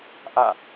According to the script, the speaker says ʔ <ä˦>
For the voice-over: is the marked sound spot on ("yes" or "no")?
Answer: no